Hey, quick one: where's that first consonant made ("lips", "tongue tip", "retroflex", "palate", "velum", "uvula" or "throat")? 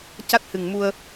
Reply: palate